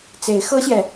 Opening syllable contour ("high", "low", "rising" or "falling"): rising